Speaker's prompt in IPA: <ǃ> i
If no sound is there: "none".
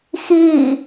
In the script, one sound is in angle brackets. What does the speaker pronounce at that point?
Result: x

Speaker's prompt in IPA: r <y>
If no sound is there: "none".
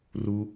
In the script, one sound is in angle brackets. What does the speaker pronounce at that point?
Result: u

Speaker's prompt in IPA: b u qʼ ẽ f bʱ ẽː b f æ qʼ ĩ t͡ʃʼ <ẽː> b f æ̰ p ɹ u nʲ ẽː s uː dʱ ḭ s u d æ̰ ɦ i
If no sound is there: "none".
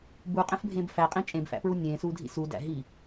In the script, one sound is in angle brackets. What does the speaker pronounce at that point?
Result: ẽ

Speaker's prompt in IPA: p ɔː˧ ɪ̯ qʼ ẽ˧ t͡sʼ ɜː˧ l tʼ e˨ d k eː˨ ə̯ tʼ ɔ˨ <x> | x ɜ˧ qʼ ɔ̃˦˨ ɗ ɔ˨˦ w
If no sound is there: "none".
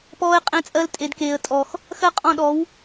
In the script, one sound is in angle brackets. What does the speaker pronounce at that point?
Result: x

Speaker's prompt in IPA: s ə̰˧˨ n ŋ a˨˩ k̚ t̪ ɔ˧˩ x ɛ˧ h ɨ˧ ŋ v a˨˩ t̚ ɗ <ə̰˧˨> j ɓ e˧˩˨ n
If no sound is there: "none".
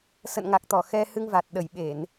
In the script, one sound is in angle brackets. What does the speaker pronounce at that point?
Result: ə˧˩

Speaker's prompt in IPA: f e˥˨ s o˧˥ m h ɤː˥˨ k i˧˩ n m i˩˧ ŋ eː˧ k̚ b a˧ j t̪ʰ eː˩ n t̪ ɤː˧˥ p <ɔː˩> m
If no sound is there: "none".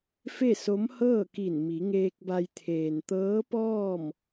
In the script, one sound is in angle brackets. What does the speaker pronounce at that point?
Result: ɔː˥˨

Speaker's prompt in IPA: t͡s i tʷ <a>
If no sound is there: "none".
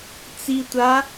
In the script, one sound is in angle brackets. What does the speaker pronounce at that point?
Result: a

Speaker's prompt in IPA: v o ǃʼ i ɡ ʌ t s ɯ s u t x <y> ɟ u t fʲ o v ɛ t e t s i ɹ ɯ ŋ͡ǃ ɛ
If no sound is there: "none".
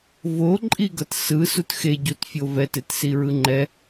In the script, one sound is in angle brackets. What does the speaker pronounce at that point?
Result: e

